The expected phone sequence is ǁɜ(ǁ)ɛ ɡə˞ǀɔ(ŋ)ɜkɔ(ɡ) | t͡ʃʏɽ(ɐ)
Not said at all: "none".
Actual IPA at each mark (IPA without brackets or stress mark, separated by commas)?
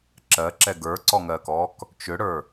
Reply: ǁ, ŋ, k, ə˞